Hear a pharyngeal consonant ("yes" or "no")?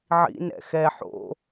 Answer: yes